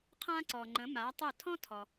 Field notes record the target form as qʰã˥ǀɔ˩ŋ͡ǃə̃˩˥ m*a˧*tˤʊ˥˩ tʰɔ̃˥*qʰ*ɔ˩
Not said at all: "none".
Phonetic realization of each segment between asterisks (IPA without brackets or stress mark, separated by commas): a˩˥, tʰ